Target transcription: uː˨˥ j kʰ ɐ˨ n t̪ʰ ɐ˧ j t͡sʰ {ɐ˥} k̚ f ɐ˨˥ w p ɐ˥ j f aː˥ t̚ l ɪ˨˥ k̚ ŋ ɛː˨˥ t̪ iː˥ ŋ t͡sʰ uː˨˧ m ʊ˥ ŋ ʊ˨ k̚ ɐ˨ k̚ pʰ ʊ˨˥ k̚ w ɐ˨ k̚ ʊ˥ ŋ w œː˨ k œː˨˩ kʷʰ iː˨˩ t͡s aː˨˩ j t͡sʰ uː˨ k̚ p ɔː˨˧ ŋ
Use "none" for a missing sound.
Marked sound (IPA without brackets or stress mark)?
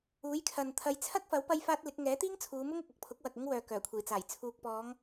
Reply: ɐ˥